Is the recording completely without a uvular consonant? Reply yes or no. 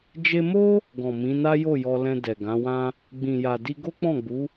yes